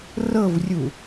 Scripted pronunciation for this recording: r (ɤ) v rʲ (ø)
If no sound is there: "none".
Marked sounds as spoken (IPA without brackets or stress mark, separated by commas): ɤ, u